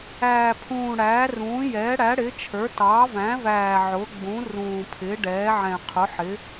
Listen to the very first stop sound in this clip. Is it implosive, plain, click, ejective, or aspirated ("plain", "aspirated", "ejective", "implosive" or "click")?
aspirated